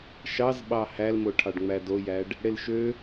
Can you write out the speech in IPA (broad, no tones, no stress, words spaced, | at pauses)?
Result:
ʃɑzɓɑ hælmo ʈʰɑɖŋ͡mædojæɖ | ɽelʃø